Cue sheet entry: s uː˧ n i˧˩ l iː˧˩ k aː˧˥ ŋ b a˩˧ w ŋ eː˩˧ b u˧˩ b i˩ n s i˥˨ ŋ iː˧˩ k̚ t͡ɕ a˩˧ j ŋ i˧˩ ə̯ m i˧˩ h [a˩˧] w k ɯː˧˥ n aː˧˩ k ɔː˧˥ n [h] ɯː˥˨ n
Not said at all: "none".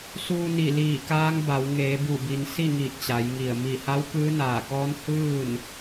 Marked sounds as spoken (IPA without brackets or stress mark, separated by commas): a˧˥, h